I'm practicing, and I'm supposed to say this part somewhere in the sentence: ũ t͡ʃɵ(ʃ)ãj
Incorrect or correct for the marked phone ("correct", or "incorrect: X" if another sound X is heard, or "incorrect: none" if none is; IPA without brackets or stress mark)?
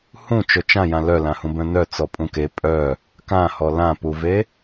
incorrect: t͡ʃ